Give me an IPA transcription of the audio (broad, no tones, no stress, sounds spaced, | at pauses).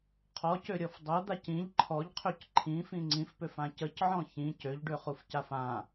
qʰ ɔ c ø ɾʲ ɔ f dˤ ɤ d̪ a c ĩ ʎ ǃʰ ɔ ʎ qʰ ø c ǃʰ ĩ f ĩ ŋ͡ǀ ĩ f p ø f ã c ə c ʕ ɔ̃ ç ĩ c ø ʎ ɖ ø χ u f c a f ã